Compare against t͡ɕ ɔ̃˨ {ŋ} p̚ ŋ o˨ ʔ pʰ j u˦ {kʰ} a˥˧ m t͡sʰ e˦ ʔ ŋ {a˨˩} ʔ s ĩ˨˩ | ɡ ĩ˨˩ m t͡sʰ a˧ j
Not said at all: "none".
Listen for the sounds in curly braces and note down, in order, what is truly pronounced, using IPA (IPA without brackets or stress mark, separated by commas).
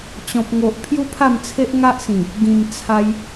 none, pʰ, a˦